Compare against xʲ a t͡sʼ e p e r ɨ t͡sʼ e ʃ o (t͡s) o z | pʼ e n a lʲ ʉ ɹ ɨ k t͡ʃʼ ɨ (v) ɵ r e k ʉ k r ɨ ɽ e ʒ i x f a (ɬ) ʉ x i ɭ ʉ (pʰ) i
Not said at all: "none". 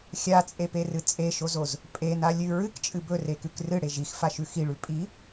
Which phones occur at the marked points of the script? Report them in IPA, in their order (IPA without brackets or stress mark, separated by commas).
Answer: z, b, ʃ, pʼ